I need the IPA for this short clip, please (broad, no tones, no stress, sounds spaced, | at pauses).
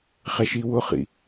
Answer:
χ ɛ ʃ i w ʊ χ ḭ